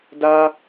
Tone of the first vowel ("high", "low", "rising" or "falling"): high